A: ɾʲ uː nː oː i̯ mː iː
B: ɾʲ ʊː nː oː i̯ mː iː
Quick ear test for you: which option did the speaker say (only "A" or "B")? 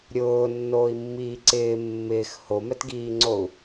B